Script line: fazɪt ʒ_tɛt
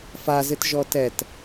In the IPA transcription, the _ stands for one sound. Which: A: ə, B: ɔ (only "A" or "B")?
B